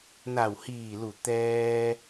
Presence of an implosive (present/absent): absent